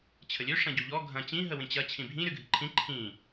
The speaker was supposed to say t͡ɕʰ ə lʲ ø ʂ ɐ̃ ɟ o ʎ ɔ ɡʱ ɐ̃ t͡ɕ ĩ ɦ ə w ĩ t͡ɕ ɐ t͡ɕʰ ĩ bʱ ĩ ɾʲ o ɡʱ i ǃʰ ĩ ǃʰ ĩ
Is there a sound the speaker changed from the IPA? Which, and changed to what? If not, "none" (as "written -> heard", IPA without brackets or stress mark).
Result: none